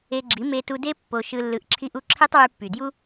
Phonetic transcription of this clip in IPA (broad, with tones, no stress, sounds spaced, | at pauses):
e˧ ɡ͡ǁ i˨˦ m e˧ t u˧ d e˦ pː o˧ ʃ ɯ˧ lː ɯ˧ ʔ ǁʰ i˦ ʔ u˦ ǁʰ e˦ tˤ w y˧ pː y˨ d j u˦